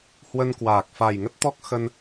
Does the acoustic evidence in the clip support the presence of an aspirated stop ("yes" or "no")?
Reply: no